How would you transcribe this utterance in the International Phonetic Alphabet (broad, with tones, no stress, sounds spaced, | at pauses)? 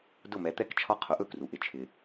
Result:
d ʊ˥˩ m ɛ˩˥ t̪ ɛ˥ k t͡ʃʰ ɒ˥ qʰ ʊ˩˥ ʔ ɵ˥˩ k r u˩ ʔ ɪ˩ t͡ʃʰ ɪ˩